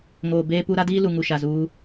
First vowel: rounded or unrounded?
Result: rounded